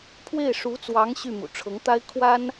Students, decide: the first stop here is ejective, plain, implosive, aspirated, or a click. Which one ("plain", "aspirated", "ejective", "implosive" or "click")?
aspirated